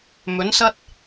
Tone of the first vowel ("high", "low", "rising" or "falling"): rising